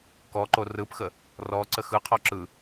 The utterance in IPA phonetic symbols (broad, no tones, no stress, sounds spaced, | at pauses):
k ɔ ǃ o r ɯ p x ə | r ɔ ǀ ə x ɯ qʰ ɔ ǁ ɯ